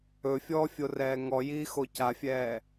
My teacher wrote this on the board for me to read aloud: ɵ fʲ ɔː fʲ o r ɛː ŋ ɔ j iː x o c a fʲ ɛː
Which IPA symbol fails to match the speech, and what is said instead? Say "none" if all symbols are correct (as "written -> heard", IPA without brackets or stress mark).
none